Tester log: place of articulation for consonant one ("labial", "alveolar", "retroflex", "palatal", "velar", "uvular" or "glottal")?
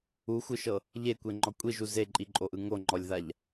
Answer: velar